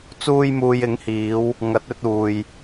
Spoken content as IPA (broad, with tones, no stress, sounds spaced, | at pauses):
t͡s uː˧ j m uː˨ j ɪ˨˥ ŋ h iː˨˧ w | ŋ ɐ˨˥ t̚ ɵ˧ t̚ uː˨ j